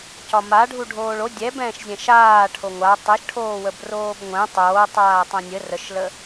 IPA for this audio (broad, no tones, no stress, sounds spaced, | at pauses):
c ɒ m a ɖʱ u ɖʱ oː ɭ o dʲ ɛ b ɛ̃ː ʃ zʲ ɛ̃ ʃ aː ʈʰ o ŋʷ a tˤ ɛ ʃ ʈʰ oː w ə b r oː b ŋʷ ɛ̃ tˤ oː tˤ aː tˤ ɛ̃ nʲ ə r ə ʃ l ə